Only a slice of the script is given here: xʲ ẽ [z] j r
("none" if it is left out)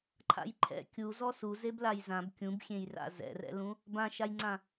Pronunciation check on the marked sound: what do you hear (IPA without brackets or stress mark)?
none